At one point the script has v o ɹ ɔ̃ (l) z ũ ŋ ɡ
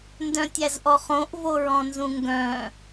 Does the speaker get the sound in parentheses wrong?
yes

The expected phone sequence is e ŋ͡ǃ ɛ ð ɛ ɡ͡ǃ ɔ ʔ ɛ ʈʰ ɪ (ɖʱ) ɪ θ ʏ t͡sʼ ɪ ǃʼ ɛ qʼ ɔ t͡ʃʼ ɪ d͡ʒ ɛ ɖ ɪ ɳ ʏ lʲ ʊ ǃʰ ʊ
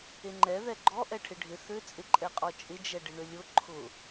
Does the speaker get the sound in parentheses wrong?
no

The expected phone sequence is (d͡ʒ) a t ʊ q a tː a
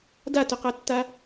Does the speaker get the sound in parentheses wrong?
yes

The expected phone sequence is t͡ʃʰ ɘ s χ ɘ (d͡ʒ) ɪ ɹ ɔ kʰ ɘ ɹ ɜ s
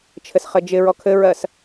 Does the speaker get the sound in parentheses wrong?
no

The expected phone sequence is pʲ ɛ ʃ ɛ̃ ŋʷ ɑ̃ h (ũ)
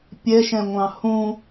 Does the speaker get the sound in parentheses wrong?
no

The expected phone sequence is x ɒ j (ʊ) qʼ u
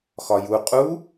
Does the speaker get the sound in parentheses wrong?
yes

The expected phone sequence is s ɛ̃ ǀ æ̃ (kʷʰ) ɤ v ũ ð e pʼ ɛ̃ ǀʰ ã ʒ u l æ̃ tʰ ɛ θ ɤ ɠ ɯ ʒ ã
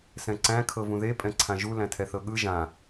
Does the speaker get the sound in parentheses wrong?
yes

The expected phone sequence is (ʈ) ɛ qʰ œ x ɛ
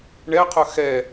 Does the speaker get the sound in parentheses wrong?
yes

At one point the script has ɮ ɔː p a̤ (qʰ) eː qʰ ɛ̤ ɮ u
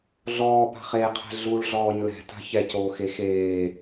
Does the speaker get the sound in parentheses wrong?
yes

